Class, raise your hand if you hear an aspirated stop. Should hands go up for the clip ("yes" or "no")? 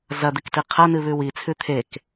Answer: yes